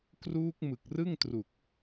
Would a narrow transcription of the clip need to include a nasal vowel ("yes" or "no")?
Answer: no